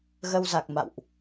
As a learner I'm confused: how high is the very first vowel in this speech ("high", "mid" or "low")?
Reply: mid